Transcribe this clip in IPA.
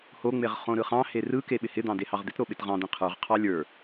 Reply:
hoŋ͡meʁ χõɾɯχɑ̃he rɯke ɓɪhɪd̪ɑ̃ dehɑʁd̪ɪtɾo ɓɪtʁɑ̃d̪ĩ qʰə˞ʁqʰɑ lʲə˞

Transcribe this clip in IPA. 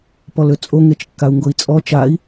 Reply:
pɔløt͡sʼo ŋet͡ʃkːau̯ŋɡoi̯t͡sʼɔ t͡ʃai̯

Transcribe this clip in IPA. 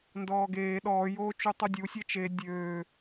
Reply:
ndɔːɡeː ɗɔː joːt͡ʃutˤudʲu sʲɛt͡ʃe dʲøː

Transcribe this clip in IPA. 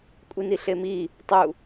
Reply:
kʷʼiniɬemi | tˤu

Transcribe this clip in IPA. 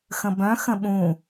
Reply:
xə̃bœ̃xə̃ ɓũ

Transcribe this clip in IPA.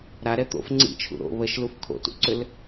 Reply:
ɾaɾɛ t̪o̰f ŋ͡ǀḭt͡ʃʰṵ ɾo̰ βəʃluf kʰo̰tṵǀʏl

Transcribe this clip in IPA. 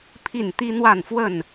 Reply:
pʰi˥˨n t̪i˦n̪wa˥˨nfwə˥˨n

